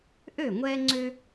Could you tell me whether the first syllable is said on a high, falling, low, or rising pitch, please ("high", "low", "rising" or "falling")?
falling